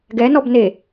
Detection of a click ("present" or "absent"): absent